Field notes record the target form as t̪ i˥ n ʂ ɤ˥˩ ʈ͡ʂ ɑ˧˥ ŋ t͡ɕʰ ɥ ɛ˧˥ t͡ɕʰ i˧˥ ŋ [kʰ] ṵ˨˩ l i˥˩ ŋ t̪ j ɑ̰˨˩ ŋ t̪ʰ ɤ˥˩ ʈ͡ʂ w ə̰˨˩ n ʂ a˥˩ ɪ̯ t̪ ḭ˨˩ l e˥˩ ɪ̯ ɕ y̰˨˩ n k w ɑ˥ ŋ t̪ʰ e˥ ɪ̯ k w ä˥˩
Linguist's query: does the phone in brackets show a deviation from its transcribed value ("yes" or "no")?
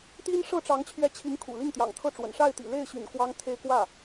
no